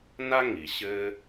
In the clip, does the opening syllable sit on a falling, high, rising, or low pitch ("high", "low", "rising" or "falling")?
high